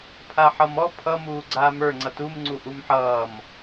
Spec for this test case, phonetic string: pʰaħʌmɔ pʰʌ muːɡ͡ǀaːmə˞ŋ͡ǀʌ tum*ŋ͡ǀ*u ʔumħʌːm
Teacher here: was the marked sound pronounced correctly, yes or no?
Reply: yes